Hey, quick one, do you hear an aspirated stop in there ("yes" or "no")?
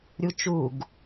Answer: no